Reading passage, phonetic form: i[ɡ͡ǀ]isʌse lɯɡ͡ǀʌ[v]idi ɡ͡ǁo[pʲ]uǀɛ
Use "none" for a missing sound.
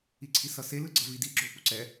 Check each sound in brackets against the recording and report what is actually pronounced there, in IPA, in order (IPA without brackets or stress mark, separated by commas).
ǀʰ, v, p